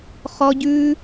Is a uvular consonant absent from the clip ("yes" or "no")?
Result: no